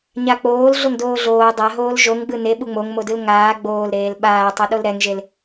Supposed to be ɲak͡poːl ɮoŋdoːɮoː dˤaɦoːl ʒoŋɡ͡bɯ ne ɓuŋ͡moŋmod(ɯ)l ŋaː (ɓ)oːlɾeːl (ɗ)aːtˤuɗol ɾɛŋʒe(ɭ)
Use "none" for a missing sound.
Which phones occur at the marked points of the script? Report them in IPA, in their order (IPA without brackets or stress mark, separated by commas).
ɯ, ɡ͡b, ɓ, l